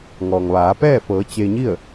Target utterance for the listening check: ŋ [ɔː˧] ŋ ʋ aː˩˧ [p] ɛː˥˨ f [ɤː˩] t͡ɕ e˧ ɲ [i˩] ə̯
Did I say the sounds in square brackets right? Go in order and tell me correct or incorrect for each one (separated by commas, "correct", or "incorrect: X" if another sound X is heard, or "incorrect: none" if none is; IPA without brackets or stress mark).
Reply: incorrect: ɔː˩, correct, incorrect: ɤː˩˧, incorrect: i˥˨